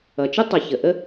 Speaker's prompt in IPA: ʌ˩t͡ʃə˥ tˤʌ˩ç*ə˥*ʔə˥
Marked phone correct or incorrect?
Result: incorrect: ə˩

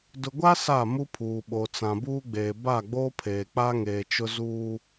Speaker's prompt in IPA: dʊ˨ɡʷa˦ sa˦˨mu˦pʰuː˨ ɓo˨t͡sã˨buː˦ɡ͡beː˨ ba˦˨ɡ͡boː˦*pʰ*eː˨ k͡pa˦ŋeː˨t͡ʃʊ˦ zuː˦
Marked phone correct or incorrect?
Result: correct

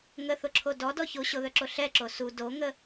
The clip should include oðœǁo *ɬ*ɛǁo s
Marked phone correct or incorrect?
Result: correct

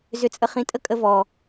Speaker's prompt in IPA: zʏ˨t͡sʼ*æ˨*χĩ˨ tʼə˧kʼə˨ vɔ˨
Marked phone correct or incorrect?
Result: incorrect: ə˨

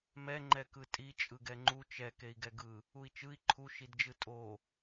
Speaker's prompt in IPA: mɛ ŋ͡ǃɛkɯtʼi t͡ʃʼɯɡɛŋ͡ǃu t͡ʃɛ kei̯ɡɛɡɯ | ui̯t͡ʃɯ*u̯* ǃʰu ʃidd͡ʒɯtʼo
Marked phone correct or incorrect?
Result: incorrect: i̯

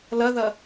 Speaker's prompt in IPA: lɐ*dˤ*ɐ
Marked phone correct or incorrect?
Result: incorrect: ð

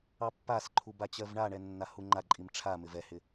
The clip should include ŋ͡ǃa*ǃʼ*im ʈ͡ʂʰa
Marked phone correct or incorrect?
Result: correct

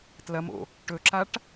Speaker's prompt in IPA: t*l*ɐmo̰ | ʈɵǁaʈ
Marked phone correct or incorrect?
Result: correct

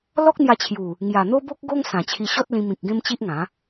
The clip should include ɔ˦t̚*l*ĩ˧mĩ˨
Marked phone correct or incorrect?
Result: correct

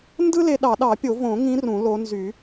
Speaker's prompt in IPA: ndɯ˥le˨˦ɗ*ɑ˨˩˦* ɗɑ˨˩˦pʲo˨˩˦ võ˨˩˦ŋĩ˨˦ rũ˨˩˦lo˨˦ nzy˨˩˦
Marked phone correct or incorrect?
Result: correct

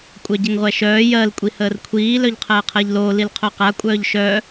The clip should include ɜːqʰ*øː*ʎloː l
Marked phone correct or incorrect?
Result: incorrect: əː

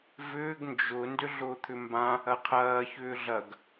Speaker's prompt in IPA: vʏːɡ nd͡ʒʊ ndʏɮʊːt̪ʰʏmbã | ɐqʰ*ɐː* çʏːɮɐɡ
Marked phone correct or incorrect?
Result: correct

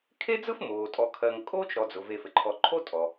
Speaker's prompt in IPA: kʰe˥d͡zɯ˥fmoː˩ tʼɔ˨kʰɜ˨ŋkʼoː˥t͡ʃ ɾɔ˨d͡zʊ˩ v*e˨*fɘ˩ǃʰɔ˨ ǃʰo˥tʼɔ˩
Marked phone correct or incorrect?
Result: correct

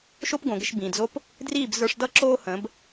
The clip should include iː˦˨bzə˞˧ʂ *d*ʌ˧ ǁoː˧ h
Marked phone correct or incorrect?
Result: correct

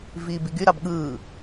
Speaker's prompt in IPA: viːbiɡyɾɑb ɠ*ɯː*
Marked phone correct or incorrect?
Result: correct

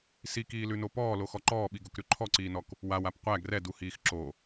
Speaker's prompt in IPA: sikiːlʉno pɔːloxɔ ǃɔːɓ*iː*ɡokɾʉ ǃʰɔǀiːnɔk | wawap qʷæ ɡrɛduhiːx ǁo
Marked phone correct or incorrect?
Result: incorrect: i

